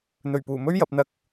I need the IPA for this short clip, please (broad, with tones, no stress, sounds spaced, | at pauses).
n̪ ɵ˨˩ ɥ p uː˨˩ m ɵ˥ ɥ j ɐ˨˥ p̚ n̪ ɐ˥ k̚